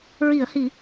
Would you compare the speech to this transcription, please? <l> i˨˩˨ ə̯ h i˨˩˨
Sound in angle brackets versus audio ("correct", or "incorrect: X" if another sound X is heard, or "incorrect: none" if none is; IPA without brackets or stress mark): incorrect: ɹ